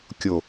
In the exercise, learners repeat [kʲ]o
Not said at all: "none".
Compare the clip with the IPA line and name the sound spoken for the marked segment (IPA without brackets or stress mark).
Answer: kʲ